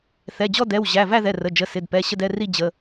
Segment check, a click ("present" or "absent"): absent